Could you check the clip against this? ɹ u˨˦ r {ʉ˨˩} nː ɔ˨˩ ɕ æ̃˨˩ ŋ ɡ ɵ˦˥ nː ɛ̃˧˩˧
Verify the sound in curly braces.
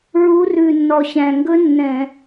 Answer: correct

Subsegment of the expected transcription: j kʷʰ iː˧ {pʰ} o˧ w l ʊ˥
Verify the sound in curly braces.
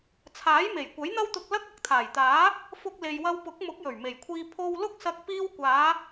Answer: correct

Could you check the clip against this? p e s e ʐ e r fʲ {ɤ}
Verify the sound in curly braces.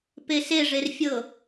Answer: correct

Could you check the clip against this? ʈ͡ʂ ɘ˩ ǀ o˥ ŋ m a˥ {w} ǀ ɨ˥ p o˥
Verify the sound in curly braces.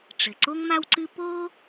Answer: correct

